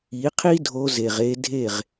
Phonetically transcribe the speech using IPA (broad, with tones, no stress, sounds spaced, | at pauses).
i˨˦ qʰ i˦ dʱ o˧ z e˨ ʁ e˧ dʱ e˦˨ ʁ